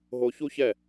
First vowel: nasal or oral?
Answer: oral